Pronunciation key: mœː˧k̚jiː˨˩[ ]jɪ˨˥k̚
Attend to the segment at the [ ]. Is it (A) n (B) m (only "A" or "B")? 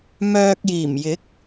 B